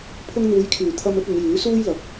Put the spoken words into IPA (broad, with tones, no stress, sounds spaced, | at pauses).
pʰ ʊ˥ ŋ n̪ uː˨˧ j kʰ yː˨˩ t̪ʰ ɐ˧ m ɵ˧ t̚ ɐ˨˧ n j yː˨˥ s uː˥ j l ɐ˨ k̚